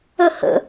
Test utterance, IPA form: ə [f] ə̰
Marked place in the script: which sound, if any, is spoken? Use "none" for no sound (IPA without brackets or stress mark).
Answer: h